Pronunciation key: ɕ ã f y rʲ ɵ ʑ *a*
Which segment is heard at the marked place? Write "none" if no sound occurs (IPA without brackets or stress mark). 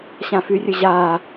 a